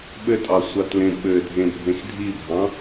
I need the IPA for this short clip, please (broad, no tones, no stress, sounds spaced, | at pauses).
ɓ ɘ tʼ ɑ sʷ ɑ t l ẽ ɓ ɘ dʱ ẽ bʱ ẽ x dʱ i bʱ ɑ̃